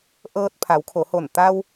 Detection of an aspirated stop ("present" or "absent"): present